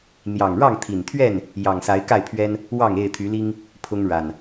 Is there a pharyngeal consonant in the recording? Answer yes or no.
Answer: no